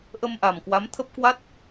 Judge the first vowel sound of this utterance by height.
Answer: mid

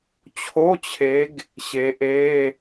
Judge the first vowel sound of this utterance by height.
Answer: mid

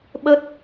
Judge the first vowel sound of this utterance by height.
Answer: mid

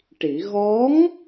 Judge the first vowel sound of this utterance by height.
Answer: high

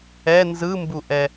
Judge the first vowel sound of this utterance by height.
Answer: mid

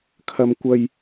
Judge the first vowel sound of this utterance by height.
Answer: low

